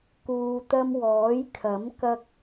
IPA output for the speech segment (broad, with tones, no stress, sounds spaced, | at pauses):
k uː˨ t̪ ɐ˧ m w ɔː˨˥ j kʰ ɐ˨˥ m k ɐ˥ k̚